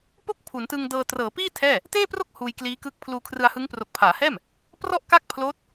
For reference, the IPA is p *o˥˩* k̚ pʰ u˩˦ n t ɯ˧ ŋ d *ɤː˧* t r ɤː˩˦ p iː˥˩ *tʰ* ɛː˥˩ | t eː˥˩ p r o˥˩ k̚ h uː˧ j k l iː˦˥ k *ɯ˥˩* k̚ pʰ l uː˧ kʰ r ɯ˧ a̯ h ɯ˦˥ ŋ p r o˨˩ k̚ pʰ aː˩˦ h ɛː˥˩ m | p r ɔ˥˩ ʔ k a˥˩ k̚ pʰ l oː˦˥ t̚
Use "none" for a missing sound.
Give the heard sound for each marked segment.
o˥˩, ɤː˧, tʰ, ɯ˦˥

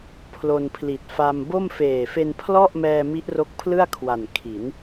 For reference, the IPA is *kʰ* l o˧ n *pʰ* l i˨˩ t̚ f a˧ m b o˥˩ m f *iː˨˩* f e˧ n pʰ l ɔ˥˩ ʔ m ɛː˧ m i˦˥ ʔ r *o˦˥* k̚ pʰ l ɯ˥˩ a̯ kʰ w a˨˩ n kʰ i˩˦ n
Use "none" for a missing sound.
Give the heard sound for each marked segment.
pʰ, pʰ, eː˨˩, o˦˥

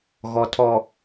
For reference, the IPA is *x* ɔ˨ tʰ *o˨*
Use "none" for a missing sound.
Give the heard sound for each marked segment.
ɣ, ɔ˨

